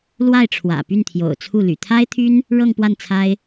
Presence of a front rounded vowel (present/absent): present